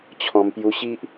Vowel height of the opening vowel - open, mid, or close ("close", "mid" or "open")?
mid